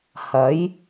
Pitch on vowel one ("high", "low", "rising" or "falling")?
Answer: rising